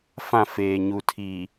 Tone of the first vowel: falling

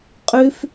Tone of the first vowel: high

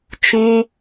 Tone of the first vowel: high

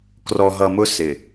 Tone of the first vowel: low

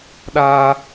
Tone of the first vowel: high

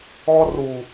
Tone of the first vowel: high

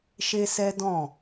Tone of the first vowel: high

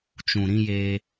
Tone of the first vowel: low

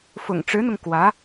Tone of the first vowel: low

